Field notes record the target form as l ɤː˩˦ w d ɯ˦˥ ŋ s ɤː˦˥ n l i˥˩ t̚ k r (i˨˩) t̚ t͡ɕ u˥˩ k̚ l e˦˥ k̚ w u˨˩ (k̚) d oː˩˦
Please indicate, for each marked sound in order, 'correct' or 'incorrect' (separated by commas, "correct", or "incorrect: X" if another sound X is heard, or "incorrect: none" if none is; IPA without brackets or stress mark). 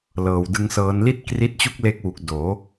incorrect: i˦˥, correct